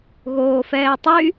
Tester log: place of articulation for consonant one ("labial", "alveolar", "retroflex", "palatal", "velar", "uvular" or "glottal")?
velar